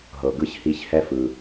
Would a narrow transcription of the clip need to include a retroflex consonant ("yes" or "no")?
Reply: no